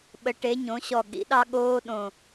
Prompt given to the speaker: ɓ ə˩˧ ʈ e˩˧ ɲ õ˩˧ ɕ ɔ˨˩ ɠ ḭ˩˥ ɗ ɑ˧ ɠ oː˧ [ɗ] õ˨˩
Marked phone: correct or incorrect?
correct